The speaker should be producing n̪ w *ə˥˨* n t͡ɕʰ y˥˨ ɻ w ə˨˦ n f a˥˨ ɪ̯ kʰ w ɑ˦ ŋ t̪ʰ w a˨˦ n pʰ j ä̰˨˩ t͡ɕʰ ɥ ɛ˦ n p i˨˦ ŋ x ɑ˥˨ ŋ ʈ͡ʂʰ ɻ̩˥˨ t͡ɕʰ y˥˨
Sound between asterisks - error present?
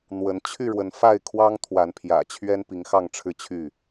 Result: yes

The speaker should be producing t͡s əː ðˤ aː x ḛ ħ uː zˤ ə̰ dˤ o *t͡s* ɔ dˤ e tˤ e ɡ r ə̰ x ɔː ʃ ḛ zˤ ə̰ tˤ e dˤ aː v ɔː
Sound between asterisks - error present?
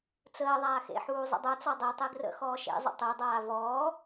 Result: no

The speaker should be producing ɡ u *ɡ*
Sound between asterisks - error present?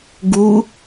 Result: yes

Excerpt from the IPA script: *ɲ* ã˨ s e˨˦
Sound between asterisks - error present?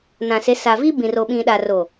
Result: yes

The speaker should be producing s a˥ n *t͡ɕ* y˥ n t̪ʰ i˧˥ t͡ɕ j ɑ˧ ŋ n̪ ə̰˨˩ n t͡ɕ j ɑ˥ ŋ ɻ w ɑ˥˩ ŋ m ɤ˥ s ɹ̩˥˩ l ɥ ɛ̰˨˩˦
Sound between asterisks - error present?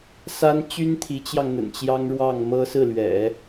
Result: no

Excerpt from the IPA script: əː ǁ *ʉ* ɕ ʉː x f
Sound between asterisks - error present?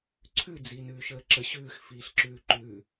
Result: yes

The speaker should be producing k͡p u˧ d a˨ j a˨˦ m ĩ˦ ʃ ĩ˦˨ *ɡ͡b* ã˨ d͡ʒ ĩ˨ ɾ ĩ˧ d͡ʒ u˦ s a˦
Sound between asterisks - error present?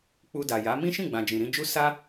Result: no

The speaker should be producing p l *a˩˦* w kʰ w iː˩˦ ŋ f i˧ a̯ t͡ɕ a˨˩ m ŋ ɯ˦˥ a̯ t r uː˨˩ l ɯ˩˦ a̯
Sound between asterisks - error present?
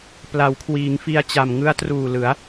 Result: no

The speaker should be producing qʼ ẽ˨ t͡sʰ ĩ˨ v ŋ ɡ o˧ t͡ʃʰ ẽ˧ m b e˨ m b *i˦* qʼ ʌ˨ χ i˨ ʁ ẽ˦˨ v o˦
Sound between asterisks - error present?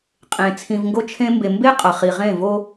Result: yes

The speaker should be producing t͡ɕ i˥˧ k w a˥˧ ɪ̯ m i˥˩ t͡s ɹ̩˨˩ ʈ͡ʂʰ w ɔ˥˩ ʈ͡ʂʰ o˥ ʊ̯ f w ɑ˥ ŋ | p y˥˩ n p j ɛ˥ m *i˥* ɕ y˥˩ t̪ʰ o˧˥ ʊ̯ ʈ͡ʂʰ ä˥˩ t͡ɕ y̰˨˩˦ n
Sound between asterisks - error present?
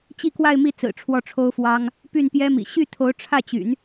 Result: yes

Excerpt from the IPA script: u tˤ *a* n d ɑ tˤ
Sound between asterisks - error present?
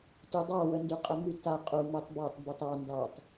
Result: yes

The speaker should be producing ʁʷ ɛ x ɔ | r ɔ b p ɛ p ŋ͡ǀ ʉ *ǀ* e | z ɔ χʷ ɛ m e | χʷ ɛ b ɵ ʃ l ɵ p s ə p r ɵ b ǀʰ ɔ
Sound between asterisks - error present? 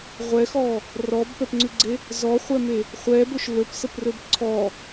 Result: yes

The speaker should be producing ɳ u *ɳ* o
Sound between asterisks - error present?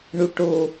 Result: yes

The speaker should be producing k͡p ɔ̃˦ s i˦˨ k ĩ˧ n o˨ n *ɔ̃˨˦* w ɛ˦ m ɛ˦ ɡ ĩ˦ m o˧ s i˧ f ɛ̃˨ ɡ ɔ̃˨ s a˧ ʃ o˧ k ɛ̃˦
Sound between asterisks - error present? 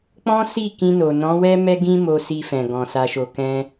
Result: no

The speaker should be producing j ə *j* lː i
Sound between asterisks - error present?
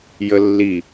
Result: yes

